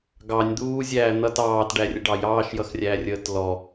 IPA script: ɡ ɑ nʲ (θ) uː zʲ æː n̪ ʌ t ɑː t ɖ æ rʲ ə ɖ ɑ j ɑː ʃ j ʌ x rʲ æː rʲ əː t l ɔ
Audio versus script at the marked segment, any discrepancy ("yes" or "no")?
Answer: yes